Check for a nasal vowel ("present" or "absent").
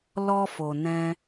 present